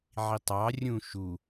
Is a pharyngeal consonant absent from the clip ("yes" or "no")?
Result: no